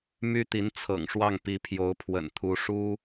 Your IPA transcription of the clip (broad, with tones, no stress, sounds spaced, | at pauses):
m y˥ t̪ i˧˥ n t͡sʰ ɤ̰˨˩ ŋ ʂ w ɑ˥˩ ŋ p i˧˥ pʰ j o˧˥ ʊ̯ pʰ w ə̰˨˩ n t̪ʰ u˧˥ ʂ u˥